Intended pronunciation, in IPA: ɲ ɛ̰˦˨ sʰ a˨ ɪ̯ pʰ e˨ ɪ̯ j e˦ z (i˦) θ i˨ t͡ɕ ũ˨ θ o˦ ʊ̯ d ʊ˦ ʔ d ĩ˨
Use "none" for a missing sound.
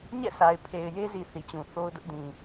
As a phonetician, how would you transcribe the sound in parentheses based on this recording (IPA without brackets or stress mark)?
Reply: i˨